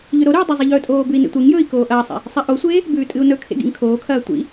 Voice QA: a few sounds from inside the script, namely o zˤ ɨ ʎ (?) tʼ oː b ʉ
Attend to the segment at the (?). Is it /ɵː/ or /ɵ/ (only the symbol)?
ɵː